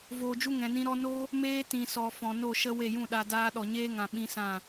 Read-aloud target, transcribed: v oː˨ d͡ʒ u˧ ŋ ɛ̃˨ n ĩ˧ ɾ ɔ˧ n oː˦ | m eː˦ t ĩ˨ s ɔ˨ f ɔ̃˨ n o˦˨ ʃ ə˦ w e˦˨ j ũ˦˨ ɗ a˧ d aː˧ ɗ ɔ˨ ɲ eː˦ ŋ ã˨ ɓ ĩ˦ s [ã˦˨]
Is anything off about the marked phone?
no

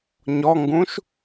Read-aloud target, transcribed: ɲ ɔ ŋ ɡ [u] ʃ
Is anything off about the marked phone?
yes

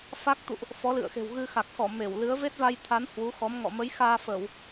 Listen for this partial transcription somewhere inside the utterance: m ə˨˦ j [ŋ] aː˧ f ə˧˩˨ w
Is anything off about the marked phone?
yes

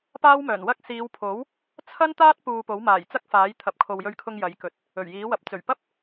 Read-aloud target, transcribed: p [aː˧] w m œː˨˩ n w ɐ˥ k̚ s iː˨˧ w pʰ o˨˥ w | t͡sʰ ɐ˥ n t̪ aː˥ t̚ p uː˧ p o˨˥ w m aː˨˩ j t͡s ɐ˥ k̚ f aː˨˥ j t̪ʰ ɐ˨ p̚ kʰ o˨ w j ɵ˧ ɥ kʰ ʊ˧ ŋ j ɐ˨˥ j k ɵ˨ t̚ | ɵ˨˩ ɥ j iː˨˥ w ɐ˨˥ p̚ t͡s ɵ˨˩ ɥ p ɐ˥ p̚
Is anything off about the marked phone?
yes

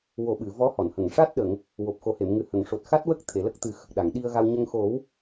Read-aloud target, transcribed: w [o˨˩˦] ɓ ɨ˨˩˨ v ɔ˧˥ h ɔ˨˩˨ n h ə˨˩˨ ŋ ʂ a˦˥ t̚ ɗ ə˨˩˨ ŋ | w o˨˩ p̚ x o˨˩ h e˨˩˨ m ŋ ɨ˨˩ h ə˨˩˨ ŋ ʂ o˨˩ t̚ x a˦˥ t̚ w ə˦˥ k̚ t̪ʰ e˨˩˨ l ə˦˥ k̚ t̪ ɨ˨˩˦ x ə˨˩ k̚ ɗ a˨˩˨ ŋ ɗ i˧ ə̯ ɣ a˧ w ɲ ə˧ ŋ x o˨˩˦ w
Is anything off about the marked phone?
no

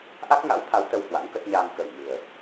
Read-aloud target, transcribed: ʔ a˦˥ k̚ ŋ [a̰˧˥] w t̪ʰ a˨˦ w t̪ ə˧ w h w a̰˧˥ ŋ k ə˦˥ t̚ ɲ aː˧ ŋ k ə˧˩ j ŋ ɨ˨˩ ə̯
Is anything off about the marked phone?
no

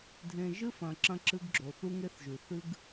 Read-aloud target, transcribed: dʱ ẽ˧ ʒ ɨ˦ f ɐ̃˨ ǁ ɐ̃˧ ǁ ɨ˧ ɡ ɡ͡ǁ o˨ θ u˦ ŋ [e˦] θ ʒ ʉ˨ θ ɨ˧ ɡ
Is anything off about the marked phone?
no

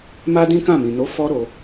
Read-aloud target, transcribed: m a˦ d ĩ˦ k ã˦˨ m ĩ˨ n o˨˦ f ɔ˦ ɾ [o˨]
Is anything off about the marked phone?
yes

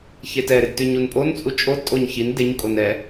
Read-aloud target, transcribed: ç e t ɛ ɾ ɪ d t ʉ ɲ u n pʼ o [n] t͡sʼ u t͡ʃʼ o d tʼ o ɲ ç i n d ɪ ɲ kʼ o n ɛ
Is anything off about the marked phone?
no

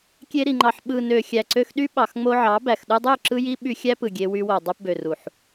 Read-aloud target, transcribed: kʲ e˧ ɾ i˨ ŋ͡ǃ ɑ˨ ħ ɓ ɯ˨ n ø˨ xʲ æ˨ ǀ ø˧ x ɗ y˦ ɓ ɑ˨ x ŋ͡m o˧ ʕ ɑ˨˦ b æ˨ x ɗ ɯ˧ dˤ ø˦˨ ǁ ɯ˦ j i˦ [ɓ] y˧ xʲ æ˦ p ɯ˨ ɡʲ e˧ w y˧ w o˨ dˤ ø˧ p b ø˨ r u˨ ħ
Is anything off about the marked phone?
no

